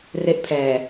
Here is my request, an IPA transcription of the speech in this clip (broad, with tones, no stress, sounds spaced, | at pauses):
r e˦˥ ʔ pʰ ɛː˨˩